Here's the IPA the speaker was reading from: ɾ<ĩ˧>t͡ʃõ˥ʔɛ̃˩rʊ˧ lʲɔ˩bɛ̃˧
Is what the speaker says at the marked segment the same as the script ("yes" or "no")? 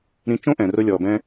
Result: yes